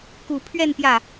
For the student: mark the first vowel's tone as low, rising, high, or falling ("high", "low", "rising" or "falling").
low